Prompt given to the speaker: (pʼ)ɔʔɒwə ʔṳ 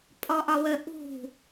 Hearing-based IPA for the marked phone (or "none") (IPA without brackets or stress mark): pʼ